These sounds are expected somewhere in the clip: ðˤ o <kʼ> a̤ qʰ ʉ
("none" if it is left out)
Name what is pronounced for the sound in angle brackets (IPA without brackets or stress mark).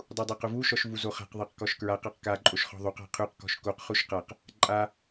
q